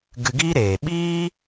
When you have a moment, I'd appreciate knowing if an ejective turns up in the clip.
no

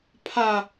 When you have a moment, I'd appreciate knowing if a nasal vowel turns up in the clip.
no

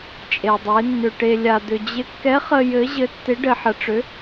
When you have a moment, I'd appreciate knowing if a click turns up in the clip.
no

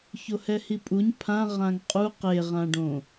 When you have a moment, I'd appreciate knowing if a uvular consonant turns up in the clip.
yes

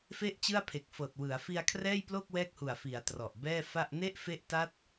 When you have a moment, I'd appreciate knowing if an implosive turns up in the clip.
no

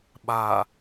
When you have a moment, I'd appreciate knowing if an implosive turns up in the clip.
yes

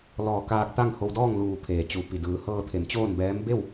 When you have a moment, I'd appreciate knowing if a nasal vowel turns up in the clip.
no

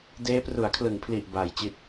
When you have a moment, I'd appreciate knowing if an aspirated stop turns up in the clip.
yes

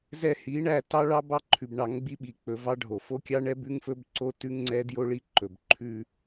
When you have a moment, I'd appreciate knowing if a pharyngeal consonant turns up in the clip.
no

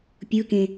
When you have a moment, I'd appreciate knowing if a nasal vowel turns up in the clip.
yes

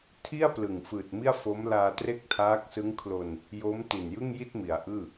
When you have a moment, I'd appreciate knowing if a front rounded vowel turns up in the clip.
no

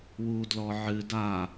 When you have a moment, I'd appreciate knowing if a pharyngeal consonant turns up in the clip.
yes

